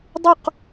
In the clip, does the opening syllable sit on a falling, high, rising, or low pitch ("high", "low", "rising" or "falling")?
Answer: falling